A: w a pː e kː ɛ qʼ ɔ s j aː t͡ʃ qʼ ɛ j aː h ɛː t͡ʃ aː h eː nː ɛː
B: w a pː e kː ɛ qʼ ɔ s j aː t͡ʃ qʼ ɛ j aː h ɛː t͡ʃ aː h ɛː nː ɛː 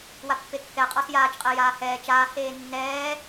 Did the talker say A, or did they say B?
A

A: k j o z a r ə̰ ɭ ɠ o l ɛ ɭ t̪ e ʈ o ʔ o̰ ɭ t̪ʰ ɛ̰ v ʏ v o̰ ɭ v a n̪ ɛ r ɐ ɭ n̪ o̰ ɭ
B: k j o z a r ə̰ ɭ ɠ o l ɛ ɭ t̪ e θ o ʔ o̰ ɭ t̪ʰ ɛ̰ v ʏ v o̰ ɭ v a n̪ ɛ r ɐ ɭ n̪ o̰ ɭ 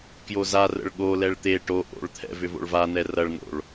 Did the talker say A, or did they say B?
A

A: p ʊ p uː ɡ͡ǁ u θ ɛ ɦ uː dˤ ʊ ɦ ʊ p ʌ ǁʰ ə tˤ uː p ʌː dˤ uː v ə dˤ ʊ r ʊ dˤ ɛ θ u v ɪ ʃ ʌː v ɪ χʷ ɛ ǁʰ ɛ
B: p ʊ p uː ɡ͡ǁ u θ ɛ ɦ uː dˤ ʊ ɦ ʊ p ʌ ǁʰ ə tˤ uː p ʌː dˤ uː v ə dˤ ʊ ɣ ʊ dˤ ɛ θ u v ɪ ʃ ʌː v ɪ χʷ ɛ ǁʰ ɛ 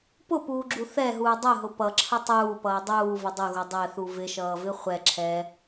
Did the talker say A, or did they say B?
B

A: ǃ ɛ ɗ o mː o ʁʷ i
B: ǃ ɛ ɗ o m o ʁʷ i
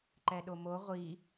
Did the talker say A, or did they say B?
B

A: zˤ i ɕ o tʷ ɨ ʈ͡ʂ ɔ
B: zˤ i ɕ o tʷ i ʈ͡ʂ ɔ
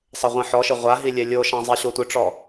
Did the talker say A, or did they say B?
A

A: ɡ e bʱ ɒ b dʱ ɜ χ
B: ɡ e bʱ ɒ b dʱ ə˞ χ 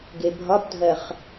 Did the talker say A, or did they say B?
A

